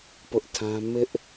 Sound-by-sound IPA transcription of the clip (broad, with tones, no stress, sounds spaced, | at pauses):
p ʊ˦ ʔ tʰ ã˦ m ɪ˦ ʔ